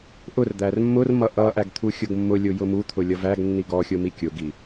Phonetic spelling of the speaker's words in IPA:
ʔ ʊ r d̪ æ r mː ʊ r m ʌ ʔ ʌ ʔ æ ɡ t̪ʰ u xʲ ʊ ɡ mː ʊ lʲ ʊ j ʊ m u t̪ʰ ʊ lʲ ʌ v æ ɡ nː i ɡ ɔ xʲ ʊ m i kʲ ʊ ɡ i

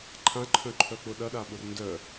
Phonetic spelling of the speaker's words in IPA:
ǃʰ ã ǃʰ œ̃ ǃʰ œ k͡p ʊ ɗ ɐ ɗ a ɓ ʊ r n d œ

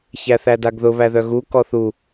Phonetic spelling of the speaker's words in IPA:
ç æ θ æ d a ɡ ð ʊ β æ ð œ ɣ u k ɔ θ u

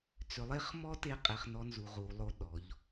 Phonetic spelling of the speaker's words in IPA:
t͡s ʏ˨ lˠ e˦ χ m ɔ˦ t e˦ qʼ e˨ χ n ɔ˦ n z u˨ ʁ u˨ lˠ o˦ ɗ ɔ˨˦ ʎ

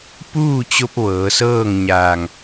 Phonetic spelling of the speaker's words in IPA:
p uː˥˨ t͡ɕ o˧ p̚ ʋ ɤː˩˧ s ɤː˥˨ ŋ ɲ aː˧˩ ŋ

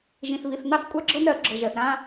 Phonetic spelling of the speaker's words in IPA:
ʒ ĩ˨ θ β i˨ θ n ɑ˦ s kʷʼ ɑ˦ ɡ͡ǁ ɤ˦ n ɾ ɜ˨˦ ɡ͡ǁ ɤ˨ ʒ ɜ˨ θ ɾ ã˧

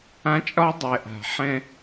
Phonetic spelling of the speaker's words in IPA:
ã˦ t͡ʃʼ ɒ˦ dˤ ɛ˨ ʔ a̤˨ ħ ɛ̃˦

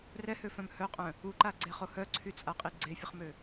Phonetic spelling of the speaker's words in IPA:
r ɛ h ø f œ̃ m h œ qʼ œ̃ | u ǃ a ɡ͡ǀ e χ o h œ ǀʰ y t͡sʼ a qʼ i ɡ͡ǀ e fʲ ə χ m ø

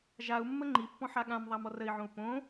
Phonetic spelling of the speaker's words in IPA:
ʒ a u̯ mː ə ŋ͡ǃ i pː ɔ̃ ħ a ɠ ã m ðˤ a m ɔ r ə i̯ ʕ õ u̯ p õ

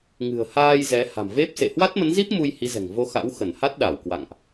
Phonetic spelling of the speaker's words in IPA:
ŋ ɨ̤˨˩ ə̯ h aː˧ j z ɛ˨˦ h a̤˨˩ m v e˦˥ p̚ s ḛ˧˨ h w a˦˥ t̚ m ə˨˦ n z i˦˥ p̚ m u˧ j h i˨˦ z ɛ̤˨˩ ŋ v o˧ x a̰˧˥ w x ə˧˩ n h a˦˥ t̚ ɗ a˧˩ w k w a̰˧˨ ŋ ʔ

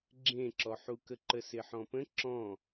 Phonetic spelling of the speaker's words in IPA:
ɡ͡ǁ ẽ ǁ ɔ ħ u k ə ǃ ə s ɪ ħ ɔ̃ p ə̃ ǁ ɔ̃

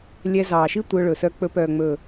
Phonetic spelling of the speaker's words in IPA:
lʲ ɛ˧ z ɑː˨ ʃ i˦ tʷ œ˧ ɭ ɵ˨ s œ˧ k͡p ɵ˧ p œː˨ ŋ͡m ɵ˨

